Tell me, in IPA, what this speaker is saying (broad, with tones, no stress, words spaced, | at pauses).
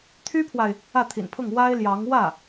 t̪ʰy˥pʰwa˨ɪ̯ | ä˥˩t̪ʰḭ˨˩npʰʊ˥˩ŋ wa˥ɪ̯ljɑ˧˥ŋ wä˥˩